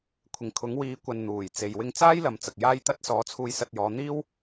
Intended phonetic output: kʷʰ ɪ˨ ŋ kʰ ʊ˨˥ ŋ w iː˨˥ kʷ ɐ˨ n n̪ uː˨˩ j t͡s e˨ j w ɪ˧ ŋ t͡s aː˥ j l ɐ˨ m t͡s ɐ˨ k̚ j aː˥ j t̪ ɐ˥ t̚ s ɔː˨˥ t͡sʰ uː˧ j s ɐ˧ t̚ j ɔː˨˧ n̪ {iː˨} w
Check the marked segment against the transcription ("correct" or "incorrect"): incorrect